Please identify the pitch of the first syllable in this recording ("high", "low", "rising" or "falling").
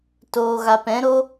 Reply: low